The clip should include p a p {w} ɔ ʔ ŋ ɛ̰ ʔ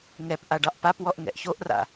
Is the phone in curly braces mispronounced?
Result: no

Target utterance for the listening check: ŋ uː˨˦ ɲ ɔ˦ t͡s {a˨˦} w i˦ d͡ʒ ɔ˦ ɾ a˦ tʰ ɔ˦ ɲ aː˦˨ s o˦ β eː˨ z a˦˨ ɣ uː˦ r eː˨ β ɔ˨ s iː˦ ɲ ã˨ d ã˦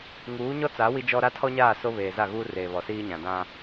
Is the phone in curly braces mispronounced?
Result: no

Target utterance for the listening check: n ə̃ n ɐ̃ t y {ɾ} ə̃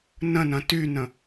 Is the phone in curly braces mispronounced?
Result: yes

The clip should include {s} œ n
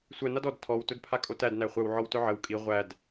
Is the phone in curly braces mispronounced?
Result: yes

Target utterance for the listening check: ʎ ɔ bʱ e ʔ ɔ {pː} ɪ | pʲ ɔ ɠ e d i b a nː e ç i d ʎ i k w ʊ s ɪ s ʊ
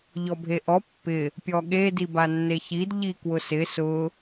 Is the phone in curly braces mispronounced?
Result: no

